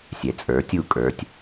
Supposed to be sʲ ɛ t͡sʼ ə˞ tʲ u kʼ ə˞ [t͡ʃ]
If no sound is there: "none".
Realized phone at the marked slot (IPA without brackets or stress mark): tʲ